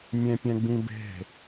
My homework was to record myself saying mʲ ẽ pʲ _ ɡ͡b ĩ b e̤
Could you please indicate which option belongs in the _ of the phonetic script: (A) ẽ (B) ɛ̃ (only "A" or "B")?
B